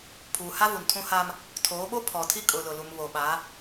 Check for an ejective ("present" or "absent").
present